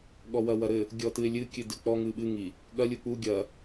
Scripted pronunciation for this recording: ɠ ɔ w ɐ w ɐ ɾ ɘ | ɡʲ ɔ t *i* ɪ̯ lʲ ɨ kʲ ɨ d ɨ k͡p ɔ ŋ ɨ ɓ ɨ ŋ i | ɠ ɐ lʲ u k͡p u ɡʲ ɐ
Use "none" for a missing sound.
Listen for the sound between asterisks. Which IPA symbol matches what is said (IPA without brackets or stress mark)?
ɨ